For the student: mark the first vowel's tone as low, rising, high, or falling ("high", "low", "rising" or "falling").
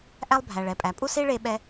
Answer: high